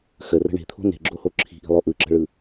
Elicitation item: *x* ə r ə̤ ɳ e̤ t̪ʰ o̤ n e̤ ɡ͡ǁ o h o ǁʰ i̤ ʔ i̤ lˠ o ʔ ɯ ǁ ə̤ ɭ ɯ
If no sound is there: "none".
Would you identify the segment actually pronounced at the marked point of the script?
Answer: x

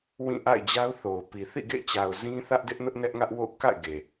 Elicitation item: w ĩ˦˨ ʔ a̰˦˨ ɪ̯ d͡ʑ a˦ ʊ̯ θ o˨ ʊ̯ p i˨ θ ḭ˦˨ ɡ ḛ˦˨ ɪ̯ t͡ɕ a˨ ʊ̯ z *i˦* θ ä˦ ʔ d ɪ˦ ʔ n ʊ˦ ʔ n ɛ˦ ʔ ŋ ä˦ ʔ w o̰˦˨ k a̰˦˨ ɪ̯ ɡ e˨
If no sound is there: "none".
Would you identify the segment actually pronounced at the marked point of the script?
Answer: ĩ˦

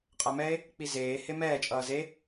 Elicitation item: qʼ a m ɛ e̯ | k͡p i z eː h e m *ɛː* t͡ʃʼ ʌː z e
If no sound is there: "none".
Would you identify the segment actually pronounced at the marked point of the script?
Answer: ɛː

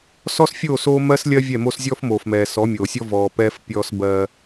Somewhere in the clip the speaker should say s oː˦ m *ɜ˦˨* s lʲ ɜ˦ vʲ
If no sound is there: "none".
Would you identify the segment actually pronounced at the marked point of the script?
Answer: ɜ˦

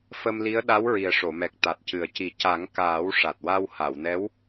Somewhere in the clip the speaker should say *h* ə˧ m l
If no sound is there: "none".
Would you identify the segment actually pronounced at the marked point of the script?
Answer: f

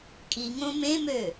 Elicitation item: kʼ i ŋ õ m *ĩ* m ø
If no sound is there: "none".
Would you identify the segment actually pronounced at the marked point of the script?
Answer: ẽ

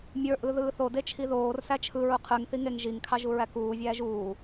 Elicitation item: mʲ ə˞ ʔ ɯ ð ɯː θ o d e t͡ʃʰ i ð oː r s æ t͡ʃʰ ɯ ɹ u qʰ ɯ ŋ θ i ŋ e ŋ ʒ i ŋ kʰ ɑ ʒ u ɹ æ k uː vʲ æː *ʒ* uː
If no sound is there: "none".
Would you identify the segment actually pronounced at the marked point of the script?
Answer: ʒ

